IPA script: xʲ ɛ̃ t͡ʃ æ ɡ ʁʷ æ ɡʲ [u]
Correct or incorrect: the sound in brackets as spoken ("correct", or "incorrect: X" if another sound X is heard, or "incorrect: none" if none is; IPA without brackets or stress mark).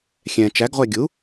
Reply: correct